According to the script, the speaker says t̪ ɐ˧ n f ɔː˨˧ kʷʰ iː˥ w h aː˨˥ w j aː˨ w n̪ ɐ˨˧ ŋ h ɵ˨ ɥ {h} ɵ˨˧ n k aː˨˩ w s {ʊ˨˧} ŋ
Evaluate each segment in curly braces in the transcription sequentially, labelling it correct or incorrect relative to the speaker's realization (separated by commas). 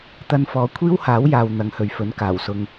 incorrect, incorrect